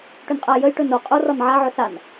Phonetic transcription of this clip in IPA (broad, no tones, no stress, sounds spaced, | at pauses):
ʈ ɵ n qʼ a j ə j ʈ ɵ n o qʼ o r ɒ n ʕ a ʕ ɵ s a n